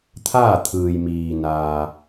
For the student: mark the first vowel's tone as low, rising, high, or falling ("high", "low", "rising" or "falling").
falling